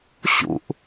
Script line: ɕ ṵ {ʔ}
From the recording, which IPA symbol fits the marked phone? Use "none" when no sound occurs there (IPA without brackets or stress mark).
ʔ